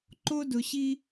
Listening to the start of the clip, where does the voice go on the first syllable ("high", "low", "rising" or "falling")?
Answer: high